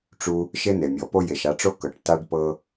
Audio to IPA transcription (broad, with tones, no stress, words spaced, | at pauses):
ʈ͡ʂu˧ | ʃe˦ne˨mʲɔ˨po˦ je˨ʃa˧ʈ͡ʂo˦kɤ˨ʈ ta˦ɖpɤ˦